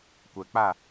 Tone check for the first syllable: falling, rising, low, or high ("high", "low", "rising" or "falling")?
low